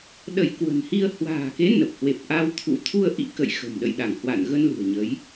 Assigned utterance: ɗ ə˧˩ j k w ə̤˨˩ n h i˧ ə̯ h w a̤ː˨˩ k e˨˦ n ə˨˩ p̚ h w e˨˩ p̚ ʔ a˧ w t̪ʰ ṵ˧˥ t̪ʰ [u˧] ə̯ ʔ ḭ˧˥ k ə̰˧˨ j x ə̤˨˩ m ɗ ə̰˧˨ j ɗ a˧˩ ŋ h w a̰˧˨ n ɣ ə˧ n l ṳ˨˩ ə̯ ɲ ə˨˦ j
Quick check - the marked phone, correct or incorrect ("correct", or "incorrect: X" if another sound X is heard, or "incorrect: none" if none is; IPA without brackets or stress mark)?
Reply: correct